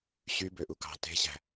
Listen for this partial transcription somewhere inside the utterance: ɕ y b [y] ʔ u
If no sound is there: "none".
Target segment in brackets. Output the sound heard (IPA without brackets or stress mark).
ø